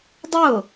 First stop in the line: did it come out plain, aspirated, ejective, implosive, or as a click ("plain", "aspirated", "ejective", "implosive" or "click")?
plain